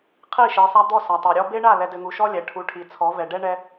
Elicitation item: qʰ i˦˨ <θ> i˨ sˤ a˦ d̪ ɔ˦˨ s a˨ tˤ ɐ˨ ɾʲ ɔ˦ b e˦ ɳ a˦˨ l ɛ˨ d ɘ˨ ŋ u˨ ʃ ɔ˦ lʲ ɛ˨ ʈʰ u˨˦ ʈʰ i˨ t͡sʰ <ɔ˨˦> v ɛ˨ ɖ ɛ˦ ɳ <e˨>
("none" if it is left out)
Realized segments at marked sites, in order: ʃ, ɔ˨˦, ɛ˨

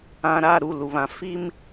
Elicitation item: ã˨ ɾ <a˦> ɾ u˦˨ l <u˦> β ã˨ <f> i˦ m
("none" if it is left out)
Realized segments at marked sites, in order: a˦˨, u˨, f

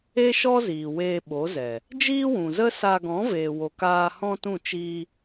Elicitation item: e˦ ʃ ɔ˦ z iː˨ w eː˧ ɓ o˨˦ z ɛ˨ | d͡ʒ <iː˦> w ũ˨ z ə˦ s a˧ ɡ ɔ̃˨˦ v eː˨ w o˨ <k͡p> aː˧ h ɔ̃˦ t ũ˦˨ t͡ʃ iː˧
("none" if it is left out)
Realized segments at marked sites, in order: iː˦, k

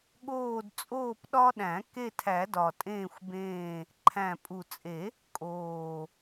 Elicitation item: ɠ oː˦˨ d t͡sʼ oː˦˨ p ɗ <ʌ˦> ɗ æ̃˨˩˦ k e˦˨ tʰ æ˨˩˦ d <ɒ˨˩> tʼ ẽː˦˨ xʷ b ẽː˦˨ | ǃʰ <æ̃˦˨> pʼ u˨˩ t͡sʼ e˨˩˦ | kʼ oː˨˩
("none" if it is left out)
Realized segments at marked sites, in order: ɒ˦, ɒ˨˩, æ̃˨˩

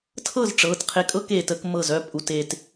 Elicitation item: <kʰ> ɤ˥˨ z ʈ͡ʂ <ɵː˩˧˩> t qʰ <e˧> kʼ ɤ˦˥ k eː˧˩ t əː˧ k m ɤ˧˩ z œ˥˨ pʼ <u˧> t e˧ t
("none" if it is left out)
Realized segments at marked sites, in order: tʰ, ɤː˩˧˩, e˧, u˧

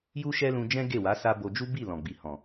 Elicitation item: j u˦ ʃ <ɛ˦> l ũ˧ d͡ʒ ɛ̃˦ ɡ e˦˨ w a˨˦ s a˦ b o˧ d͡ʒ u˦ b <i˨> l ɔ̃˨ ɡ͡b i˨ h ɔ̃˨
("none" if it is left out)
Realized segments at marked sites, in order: ɛ˦, i˦˨

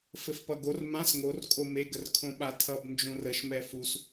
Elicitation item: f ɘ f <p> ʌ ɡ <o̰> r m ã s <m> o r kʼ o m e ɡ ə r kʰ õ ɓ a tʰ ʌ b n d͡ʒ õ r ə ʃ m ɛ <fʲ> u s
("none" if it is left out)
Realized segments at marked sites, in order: p, o, ŋ, f

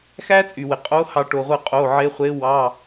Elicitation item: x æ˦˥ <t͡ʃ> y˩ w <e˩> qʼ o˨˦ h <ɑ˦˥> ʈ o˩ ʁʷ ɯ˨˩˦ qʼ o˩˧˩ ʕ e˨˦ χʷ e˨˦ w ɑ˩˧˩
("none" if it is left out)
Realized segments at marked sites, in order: t͡sʼ, e˩, ɑ˨˩˦

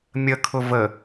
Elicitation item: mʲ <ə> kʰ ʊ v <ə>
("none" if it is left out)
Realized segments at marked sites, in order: ə, ə

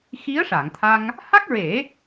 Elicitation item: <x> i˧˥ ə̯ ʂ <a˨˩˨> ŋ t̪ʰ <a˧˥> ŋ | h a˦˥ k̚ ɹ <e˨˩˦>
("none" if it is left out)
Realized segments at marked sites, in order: x, a˨˩˨, a˧, e˨˩˦

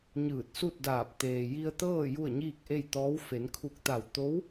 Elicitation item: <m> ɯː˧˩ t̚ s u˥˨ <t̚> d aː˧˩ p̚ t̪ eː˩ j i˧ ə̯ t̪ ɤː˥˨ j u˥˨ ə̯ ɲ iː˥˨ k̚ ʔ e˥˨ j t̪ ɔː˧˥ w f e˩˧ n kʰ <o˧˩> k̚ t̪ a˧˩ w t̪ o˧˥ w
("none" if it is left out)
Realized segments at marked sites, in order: ɲ, t̚, u˧˩

